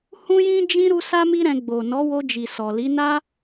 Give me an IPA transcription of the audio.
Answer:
hũ˦jĩ˦d͡ʒĩ˦ ɾu˦sa˦mi˦ɾɛ̃˧ ɡ͡bo˨ nɔ˨˦wo˧d͡ʒi˨ sɔ˨li˨˦na˦

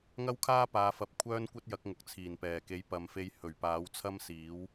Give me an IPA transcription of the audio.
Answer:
ŋɐ˥wkʰaː˥paː˨˧fɐ˨˥p̚ kʷʰœː˥nkʷɐ˥t̚jɐ˨˥k̚ ŋʊ˨k̚t͡sʰiː˨˩n pɛː˨˩ke˨˥j pɐ˨˧mfe˧j hɵ˨˩ɥpaː˨˥wt͡sʰɐ˥msiː˨˥w

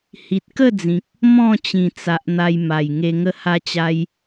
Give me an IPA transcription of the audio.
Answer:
hi˨t̚kə˥˧d͡zĩ˨k̚ | mɔ̃˥˧t͡ɕĩ˨˩t͡sa˨ʔ n̪a˧jma˨˩jŋe˧ ŋə˦ha˦t͡ɕa˦j

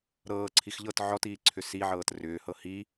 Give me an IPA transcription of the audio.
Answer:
ɾɤːǀʰix ʎɤt ʕɔtiːǀʰʏ siʕɤːt rʏːhɤ hi

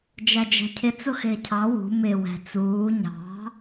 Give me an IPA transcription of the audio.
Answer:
d͡ʒæd͡ʒæ̤cʰɪ t͡sʊxɪːcʰɑ wṳ mɪ wæ̤t͡suː ɲɑ̤

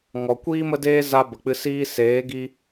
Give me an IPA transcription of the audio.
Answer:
ŋɔ˨kʷiː˦mə˦deː˦ za˧ bə˨k͡pɨ˧ siː˧seː˨˦ ɡi˦

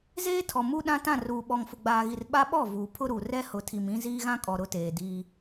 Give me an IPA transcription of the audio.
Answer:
zeː˦tʰɔ˨ mu˦ɗã˦ tã˦˨ruː˨ɓɔ˨ŋfʊ˨ ɡ͡baː˨ɣi˨r ɓa˦ɓɔ˦˨ vuː˨pʰʊ˦ɾu˨ rɛ˦hʊ˨tʰi˨m ĩ˦ ziː˦ɣã˦kʼɔ˨ ɾʊ˦teː˨diː˦

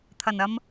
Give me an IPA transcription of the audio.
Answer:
t̪ʰɐ˨˩nɐ˧m

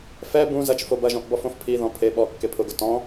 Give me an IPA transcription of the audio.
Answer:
fɛ bũ zɐt͡ʃ fobɐʒɔ̃ʔ bɔfõfpʰiðɔ̃ pʰe ɓɔ kːepʰʊɡʊ tɔ̃

